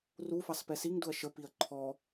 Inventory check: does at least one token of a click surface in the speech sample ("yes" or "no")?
yes